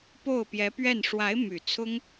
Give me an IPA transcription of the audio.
p o˥˩ ʊ̯ p j ɛ˧˥ p ɥ ɛ˥˩ n ʂ w a˧˥ ɪ̯ m y˨˩ t͡sʰ ʊ˥ ŋ

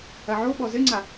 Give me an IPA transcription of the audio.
ɐ ʕ o ɓ ɔ z ɘ ŋ͡ǀ a

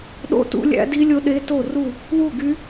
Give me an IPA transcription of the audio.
ɗ o̰˥˨ t ṵ˦˥ lʲ æ̰˦˥ d i˦˥ lʲ o˦˥ ɗ e˦˥ t o˥˨ r u˥˨ | w u˥˨ ɡ y˦˥

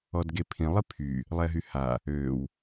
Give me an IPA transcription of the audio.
ɔ d ɡ e pʰ ĩ lˠ i pʰ y | lˠ ɛ ɦ y h a | ø w

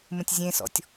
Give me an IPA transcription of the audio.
m ə̃ tʲ zʲ ẽ s ɔ̰ tʲ

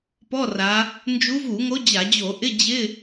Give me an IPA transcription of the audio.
p ɔ˧˥˧ r a˨˦ | n d͡ʒ u˨˦ v u˧˩˧ ŋ o˨˦ d͡ʑ a˧˩˧ d͡ʑ o˧˩˧ ʔ ɪ˧˥˧ d͡ʑ ɪ˧˥˧

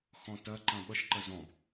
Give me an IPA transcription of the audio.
x ɔ̃ t ɐ ǃ ɐ̃ ɓ ʌ ʃ ǃ ɐ z ɔ̃ b

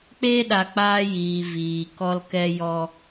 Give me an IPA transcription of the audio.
k͡p eː˦ ɗ a˨ k͡p aː˧ j iː˨ v iː˨ k ɔ˧ l k ɛ˧ j ɔ˧

